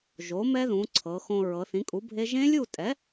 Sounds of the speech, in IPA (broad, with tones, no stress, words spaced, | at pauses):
ʒo˩˥mɛ˦˥ðũ˩˧ ǀʰɤ˩˧xõ˧ ɹɤ˩˧θĩ˩˥kʼu˩˥bʱe˦˥ ʒẽ˦˥lʲu˥˨tʼɛ˩˥